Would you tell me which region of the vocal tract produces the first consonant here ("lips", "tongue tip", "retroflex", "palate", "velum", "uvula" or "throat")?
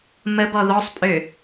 lips